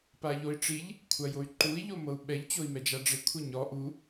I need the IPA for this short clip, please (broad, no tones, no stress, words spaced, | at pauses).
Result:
paʎoi̯ʈ͡ʂiʎ | kʷʰajoy̯ǃui̯ ʎomɤu̯ɓɛʎ t͡ɕoi̯mɛd͡ʒaɖ͡ʐe kʷʰeɲɔ ʔu